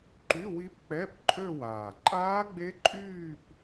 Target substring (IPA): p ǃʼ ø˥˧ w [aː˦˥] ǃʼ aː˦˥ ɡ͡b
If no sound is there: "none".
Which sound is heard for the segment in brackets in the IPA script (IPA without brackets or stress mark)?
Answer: aː˨˩